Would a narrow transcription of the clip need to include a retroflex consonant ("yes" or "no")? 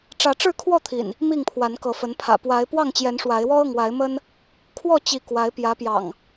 yes